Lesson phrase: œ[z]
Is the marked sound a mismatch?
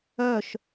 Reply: yes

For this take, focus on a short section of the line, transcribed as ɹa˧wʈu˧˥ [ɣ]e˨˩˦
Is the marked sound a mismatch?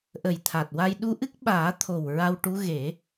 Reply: no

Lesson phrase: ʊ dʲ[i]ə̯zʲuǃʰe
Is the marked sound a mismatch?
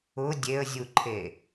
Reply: yes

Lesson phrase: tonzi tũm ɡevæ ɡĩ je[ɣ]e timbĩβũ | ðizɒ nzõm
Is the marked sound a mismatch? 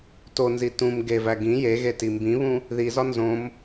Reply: no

